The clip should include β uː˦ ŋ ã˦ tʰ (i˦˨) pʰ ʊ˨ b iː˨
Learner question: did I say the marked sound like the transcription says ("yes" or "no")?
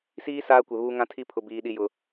no